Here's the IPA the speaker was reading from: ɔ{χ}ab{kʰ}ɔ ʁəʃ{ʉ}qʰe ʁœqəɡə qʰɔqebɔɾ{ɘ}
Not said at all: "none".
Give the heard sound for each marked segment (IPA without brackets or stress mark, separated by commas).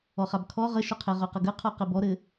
χ, kʰ, ʊ, ɘ